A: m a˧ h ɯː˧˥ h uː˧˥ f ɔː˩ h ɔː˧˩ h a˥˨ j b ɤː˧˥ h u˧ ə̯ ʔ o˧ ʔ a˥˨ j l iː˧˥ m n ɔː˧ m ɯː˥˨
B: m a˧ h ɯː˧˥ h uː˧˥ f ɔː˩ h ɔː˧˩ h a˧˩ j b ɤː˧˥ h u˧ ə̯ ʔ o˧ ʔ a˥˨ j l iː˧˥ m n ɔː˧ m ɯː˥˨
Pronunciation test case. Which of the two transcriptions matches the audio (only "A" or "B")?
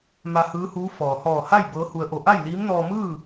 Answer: A